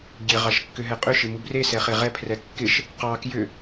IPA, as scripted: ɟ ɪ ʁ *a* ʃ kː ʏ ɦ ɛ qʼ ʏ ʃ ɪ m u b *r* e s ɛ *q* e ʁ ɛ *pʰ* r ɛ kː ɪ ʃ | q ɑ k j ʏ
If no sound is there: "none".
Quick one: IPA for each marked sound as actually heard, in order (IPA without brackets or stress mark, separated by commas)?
ɑ, r, χ, pʰ